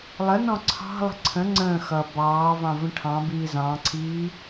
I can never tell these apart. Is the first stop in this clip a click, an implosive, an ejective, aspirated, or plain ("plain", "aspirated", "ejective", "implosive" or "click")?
click